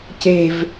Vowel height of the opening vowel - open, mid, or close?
mid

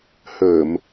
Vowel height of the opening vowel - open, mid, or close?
mid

